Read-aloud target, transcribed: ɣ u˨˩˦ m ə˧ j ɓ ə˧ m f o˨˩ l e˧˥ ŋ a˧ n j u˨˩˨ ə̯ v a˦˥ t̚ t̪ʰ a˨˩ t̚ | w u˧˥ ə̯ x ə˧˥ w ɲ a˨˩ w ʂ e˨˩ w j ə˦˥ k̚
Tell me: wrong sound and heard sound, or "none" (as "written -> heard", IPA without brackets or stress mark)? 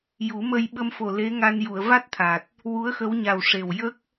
ɣ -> j